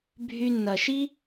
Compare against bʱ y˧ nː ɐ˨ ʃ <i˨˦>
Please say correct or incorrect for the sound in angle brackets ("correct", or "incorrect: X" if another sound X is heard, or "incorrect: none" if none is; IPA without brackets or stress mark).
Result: incorrect: i˦